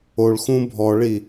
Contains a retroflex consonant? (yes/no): yes